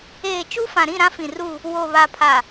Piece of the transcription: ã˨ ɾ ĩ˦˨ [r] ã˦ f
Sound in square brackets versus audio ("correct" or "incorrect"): incorrect